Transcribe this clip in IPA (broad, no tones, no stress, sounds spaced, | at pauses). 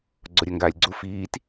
ɡ͡ǀ o ɾʲ ɐ ŋ ɡ aː lʲ ɡ͡ǀ u f iː t